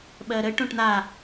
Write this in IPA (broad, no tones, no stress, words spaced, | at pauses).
ɓɜɾə ʈõʈn̪a